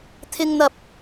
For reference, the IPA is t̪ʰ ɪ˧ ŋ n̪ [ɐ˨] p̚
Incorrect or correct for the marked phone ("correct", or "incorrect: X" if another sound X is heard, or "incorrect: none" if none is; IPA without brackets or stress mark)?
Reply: correct